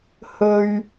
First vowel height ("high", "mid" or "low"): mid